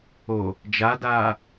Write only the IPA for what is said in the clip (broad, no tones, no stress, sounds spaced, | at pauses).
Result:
o | d͡ʒ a d aː